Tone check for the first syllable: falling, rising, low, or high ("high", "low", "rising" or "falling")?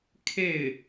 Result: falling